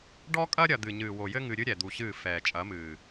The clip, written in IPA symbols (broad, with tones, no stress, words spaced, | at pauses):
ɖɔ˦kʼɐ˦ ɾʲɐ˨ d̪ɨ˨ɲɨː˨wo˨jɘ˦ ŋɨ˨ɾʲɨ˦ ɾʲɛ˨d̪u˨ɕɨː˦˨ fɛː˨ t͡ʃʼɐ˨˦mɨː˨